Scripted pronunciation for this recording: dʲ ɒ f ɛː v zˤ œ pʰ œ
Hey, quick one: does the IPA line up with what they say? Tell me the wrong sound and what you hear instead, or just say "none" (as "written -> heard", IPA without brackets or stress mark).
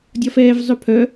none